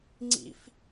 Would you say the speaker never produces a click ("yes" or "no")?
no